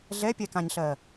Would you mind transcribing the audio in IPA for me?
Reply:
ɮ ɛ pʲ ɛ k ã ɲ ɬ ɜ

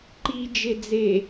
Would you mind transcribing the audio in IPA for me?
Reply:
ǃ i d͡ʒ e d͡z e

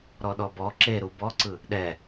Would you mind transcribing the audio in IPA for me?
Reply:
ɾ ɔ ɗ ɔ b ɔ ǁ e ɾ u b ɔ ǀ ɯ | ɗ ɛ

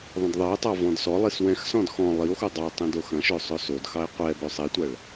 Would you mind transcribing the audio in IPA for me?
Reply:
ðˤ ɐ̃ d ðˤ ɜ e̯ tˤ ɑ v ɔ̃ d s ɔ lˠ i s w ɛ̃ x s ɔ̃ d x ɔ̃ lˠ i o̯ x o dˤ ɑ tˤ ĩ d o x ɐ̃ ʃ ø sˤ ø s o d x ɑ e̯ qʷ ɛ b ø sˤ i tʷ ɐ ɭ

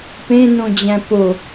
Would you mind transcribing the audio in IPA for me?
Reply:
p ẽ n õ d͡ʑ æ̃ p o

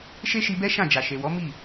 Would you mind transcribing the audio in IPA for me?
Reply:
ʃ e˦ ʃ i˧ b ɛ˦ ʃ ã˦˨ d͡ʒ a˨ ʃ e˨ w ɔ˨˦ m i˦˨

